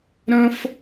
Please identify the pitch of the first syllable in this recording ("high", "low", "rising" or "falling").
high